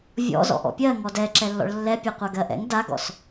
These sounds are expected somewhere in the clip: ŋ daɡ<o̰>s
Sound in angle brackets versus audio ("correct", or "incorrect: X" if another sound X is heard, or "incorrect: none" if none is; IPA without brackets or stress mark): incorrect: ɔ̰